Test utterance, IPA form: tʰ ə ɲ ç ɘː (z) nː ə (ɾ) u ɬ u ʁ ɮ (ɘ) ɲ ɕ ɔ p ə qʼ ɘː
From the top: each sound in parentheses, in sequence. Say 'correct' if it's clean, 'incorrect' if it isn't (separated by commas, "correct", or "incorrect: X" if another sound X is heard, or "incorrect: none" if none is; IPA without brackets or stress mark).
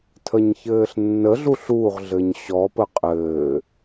incorrect: ɬ, incorrect: ɮ, correct